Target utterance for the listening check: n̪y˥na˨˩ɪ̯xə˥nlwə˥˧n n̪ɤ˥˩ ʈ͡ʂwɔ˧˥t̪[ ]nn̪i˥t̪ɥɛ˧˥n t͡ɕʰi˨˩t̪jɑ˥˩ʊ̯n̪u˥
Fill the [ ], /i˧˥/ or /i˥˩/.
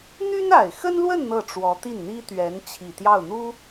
i˥˩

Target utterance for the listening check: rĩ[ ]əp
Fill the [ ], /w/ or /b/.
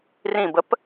b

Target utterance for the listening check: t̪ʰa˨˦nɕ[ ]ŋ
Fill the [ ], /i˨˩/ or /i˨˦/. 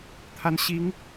i˨˦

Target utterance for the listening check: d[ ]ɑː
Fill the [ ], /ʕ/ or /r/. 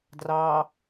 r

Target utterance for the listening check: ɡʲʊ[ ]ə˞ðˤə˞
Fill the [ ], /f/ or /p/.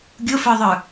f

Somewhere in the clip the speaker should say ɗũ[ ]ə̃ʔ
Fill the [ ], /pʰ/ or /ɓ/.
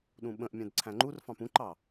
ɓ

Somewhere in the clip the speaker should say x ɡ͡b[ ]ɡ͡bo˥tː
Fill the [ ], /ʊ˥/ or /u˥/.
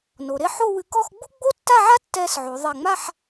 u˥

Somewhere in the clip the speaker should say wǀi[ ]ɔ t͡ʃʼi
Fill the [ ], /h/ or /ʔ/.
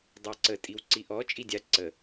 ʔ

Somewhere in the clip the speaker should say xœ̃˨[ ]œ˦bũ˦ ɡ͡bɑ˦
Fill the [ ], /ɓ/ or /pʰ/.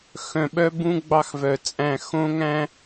ɓ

